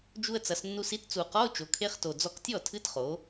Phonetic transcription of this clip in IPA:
d͡ʒ u˧ ə̯ t͡s ɐ˩˧ s nː u˧ s i˧˥ t t͡s u˨˩ q ɔ˧˥˧ ʊ̯ t͡ʃ o˩˧ kʰ e˧˥˧ χ t o˨˩ d͡z ɔ˧ k tʲ ɔ˥˩ tʰ ɨ˧˥ t χ o˩˧

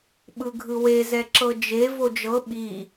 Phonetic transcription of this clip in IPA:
ɓ ɯ ɡʱ ɯ w e z ɛ ǁ ɤ d͡ʒ e v o d͡ʒ ɤ ɓ i

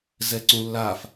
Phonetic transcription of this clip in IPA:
z ɛ ǀ ũ lː a f

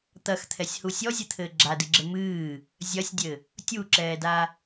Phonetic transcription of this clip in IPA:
t̪ ɐ x t̪ʰ ɛ sʲ h u sʲ ɔ zʲ ɨ t̪ʰ ɘː ɡ͡ǁ a d ɨ ɡ͡ǁ ɘ m ɨː | zʲ ɐ sʲ dʲ ɘ | tʲ u ǁ ɛː d a

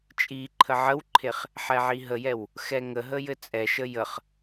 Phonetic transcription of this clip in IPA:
t͡ʃʼ i ǃʰ ə ʕ ə w ǃʰ e χ | ħ ɛ ʕ i ɦ ə j ɛ w | x ɛ ŋ ə ɦ ə j ɘ t͡sʼ ɛ ʃ ə j ə χ

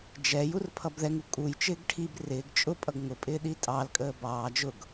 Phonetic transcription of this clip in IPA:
d͡ʒ ɛ j u r pʰ ʌ b ð ɛ ŋ u kʼ u j t͡ʃ ɪː ɡ ʈʰ i b r ɪː ɡ t͡ʃʼ ʊ pʼ ʌ ɡ ŋ ʊ pʼ ɪː ɗ i tʼ ɑ l kʼ əː b ɑː d͡ʒ ʊ ɡ

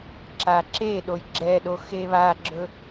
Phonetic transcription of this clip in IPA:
ǁ a ǁ e ɗ o j ɡ͡ǁ ɛ ɗ o x e β a ɡ͡ǁ ɵ

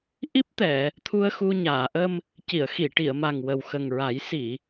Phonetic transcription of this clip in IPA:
ʔ i˦˥ p̚ t̪ ɛ˨˩˨ | t̪ʰ u˧ ə̯ x u˧ ɲ aː˨˩˨ ʔ ə˧ m | c i˨˩˨ ə̯ x i˨˩˨ ʈ i˨˩˨ ə̯ m a˨˩ ŋ w ə˨˩ w x ə˨˩ ŋ ɹ a˨˩˦ j s i˨˩˨

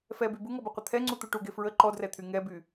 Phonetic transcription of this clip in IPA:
f ɛ b y b u ŋ ɔ b y qʷ ə t̪ʰ ɛ ŋ͡ǀ u t̪ u ʈ u ɡ e f ɹ ə ǃ ɔ d r ɛ t̪ʰ y ŋ ɛ b y

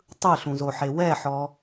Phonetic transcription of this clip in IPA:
tˤ ɯ ɬ ũ z o ħ e w ɛ ħ ɔ

